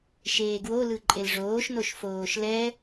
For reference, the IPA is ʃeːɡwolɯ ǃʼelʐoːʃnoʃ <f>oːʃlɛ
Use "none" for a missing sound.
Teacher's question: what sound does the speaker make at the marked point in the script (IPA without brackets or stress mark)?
f